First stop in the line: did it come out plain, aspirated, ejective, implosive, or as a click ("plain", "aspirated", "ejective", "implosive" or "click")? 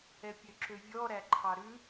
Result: plain